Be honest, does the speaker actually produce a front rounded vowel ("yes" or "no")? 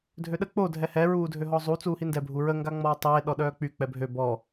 yes